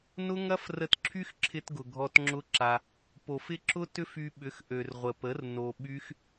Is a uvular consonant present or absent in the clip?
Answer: present